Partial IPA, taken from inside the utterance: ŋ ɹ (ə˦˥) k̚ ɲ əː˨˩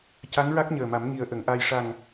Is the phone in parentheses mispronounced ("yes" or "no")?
yes